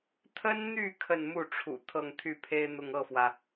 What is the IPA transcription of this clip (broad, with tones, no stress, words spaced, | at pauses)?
t̪ʰə˥nn̪y˥˧ kʰə˥˧nmu˥˩ʈ͡ʂʰṵ˨˩ t̪ʰɤ˥˧ŋt̪ʰy˥˩pʰe˥ɪ̯n̪ʊ˥˧ŋ ɤ˥˩fwä˩